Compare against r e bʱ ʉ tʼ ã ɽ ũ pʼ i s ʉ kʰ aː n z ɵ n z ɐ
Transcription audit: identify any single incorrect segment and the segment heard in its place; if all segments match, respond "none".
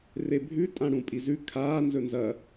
s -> z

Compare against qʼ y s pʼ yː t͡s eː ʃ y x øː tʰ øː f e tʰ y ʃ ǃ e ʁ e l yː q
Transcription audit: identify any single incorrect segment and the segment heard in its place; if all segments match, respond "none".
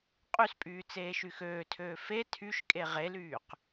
ǃ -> kʼ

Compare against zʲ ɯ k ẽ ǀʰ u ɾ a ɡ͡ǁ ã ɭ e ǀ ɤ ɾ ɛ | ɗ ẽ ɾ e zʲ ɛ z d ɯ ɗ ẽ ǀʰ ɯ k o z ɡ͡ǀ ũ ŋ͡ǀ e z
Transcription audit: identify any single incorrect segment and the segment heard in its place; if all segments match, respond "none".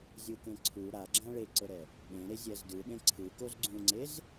none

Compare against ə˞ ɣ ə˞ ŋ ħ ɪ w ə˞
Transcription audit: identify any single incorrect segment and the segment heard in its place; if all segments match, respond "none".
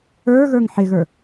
w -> ɣ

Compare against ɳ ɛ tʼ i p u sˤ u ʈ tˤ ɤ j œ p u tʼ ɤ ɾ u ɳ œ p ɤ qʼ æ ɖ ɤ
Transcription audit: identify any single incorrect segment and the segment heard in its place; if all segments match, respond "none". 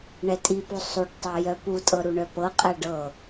none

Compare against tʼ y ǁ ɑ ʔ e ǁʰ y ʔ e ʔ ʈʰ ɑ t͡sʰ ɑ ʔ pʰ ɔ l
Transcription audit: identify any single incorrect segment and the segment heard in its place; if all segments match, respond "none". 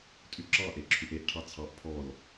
none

